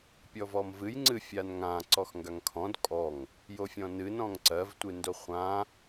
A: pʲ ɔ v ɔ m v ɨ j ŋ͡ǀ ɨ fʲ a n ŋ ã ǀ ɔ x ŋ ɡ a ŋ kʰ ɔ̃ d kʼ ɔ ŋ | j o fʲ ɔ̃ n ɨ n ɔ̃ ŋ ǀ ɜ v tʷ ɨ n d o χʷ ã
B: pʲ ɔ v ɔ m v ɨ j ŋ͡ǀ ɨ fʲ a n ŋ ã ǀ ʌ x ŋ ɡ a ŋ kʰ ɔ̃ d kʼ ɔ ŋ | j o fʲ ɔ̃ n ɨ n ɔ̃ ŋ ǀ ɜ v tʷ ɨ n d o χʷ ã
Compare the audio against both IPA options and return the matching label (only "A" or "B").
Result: A